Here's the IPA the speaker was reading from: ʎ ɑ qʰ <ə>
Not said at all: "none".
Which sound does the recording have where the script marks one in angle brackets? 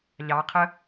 ə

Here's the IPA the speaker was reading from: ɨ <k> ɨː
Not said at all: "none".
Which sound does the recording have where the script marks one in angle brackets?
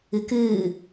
k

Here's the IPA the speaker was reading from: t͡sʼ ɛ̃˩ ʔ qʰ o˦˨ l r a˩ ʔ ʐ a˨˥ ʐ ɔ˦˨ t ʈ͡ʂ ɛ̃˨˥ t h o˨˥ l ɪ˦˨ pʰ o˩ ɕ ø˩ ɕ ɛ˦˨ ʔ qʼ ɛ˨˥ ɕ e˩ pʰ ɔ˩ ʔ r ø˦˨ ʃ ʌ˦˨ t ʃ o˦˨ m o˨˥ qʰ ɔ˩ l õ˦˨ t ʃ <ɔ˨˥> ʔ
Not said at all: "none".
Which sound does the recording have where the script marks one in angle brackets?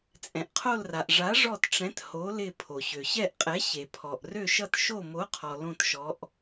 ɔ˨˥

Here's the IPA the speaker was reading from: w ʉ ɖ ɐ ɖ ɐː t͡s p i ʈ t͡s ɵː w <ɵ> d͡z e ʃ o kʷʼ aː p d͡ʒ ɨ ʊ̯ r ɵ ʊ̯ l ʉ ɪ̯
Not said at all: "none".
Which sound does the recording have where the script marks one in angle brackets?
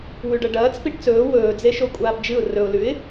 ɵː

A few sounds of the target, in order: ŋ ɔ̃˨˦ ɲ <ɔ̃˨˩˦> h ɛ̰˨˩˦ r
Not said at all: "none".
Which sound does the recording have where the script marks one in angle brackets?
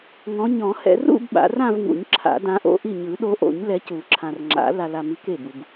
ɔ̃˨˩˦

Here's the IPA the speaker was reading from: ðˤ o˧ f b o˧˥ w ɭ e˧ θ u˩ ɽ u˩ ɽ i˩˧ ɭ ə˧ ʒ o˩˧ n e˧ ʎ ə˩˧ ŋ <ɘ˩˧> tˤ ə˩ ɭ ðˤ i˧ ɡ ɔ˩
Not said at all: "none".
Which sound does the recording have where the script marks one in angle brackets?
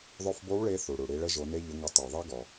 ɘ˩˧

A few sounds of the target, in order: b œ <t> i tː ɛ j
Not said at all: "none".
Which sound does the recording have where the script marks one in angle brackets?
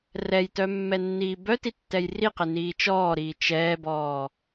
t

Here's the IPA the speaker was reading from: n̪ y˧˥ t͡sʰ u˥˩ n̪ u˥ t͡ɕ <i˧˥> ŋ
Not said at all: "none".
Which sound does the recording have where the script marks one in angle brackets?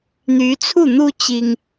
i˥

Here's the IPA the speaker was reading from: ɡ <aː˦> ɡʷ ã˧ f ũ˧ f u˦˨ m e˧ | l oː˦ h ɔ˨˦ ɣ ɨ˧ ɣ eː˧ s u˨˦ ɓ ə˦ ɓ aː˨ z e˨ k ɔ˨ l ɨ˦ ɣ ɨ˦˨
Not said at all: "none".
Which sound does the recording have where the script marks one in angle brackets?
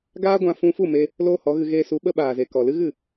aː˦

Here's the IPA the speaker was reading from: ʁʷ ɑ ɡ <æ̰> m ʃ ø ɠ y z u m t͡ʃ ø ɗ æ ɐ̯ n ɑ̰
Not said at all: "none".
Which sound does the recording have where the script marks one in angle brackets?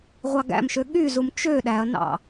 æ̰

